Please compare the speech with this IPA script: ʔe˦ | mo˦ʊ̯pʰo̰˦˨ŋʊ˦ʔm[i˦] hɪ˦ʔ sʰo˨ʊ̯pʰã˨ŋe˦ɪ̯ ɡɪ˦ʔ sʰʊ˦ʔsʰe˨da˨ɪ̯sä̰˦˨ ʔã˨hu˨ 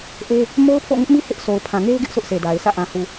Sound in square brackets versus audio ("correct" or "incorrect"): correct